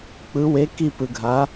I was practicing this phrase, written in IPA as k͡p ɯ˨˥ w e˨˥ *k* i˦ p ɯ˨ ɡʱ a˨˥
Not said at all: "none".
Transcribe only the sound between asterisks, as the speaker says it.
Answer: k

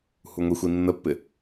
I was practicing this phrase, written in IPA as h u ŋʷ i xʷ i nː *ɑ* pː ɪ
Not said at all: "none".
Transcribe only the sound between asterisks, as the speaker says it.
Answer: ə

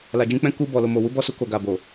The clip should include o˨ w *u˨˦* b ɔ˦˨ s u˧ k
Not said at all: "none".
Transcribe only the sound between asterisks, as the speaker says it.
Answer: u˨˦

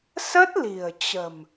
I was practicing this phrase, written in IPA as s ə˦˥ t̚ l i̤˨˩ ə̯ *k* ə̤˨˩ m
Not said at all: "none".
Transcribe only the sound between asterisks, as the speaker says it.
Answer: t͡ɕ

